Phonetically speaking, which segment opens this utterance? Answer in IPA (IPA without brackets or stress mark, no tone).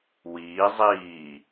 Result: w